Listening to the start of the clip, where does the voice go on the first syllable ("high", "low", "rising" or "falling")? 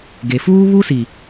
low